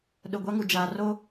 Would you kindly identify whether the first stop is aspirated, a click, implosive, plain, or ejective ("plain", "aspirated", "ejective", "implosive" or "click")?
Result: implosive